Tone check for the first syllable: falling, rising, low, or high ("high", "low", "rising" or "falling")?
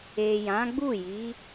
low